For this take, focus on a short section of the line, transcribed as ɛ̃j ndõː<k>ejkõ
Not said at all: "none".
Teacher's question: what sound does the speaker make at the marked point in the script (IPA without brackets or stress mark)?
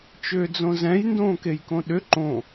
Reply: k